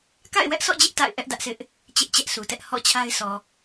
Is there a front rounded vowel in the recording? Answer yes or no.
no